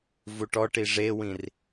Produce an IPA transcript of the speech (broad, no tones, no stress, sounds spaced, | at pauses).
v u ʈ ɔ ʈ i ʐ e w ĩ r